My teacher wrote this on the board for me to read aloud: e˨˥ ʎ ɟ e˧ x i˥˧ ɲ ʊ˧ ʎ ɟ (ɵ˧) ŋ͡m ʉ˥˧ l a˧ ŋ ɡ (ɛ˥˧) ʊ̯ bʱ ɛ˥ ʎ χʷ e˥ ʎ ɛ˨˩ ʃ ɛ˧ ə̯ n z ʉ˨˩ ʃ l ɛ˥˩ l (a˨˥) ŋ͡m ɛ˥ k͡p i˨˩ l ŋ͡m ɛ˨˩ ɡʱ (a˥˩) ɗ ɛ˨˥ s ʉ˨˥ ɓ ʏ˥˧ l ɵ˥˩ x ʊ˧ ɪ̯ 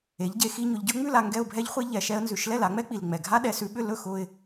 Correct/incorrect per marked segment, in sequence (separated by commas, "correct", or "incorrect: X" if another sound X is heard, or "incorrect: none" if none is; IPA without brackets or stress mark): incorrect: ɵ˥, correct, correct, incorrect: a˥